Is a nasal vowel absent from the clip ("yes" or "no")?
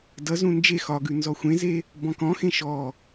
no